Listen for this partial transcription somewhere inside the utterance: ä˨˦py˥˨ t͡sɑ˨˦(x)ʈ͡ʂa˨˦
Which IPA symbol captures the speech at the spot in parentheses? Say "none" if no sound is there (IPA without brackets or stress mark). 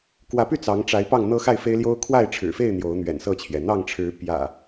ŋ